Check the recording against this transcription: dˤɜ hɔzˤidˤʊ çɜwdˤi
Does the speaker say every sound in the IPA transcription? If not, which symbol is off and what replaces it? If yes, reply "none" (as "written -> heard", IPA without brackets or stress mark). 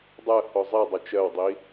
ç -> t͡ʃ